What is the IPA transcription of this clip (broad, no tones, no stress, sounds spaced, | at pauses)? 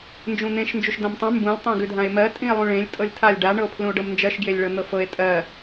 n d͡ʒ ũ n̪ ẽ ʃ n d͡ʒ u ʃ d ã m tˤ ũ m b ũ lʲ tˤ ẽ ɡ ʉ dʱ ã e̯ m ɜ tʼ ĩ e̯ lˠ ũ ɭ ẽ lʲ tʼ ɤ lʲ tʰ a lʲ ɖ a ɳ ɤ o̯ pʰ l ũ o̯ ɖ ɤ m n d͡ʒ ɜ ʃ ɡ j e lʲ ɭ ɤ n̪ ɤ f ɤ e̯ tʼ ɜ